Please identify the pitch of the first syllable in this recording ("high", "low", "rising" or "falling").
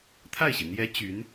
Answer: falling